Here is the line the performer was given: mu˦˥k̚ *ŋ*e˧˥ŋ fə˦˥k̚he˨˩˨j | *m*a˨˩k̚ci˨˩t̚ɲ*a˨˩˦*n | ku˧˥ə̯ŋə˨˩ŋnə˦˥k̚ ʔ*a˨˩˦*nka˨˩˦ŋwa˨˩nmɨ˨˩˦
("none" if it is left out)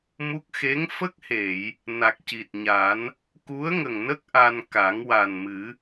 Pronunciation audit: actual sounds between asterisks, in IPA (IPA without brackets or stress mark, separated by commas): x, n, a˨˩˦, a˧